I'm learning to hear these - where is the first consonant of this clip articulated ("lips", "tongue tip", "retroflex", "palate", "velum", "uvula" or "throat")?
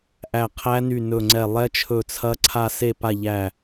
throat